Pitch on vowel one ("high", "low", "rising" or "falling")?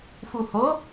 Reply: low